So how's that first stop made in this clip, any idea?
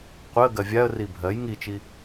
plain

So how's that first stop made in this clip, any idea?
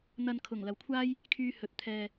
aspirated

